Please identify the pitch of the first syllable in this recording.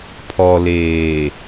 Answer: low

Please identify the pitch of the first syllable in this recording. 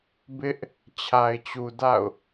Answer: high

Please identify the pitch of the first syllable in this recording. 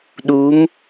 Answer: rising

